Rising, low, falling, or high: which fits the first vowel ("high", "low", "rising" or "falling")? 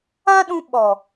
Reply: high